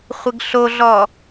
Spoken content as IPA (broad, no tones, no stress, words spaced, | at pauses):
χʷɪɡɬoɮɔ